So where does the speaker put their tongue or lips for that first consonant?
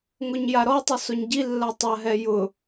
velum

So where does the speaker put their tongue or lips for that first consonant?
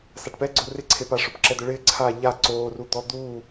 tongue tip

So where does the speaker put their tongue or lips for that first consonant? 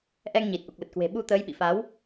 throat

